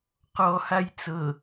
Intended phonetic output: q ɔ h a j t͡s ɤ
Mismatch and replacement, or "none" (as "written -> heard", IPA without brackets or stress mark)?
none